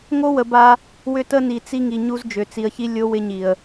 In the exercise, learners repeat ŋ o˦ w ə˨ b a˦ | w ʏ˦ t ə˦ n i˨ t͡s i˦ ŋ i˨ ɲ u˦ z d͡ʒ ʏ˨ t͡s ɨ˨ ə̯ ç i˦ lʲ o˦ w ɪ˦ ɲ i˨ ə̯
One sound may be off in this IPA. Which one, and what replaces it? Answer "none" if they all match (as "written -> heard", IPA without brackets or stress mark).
ɨ˨ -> i˨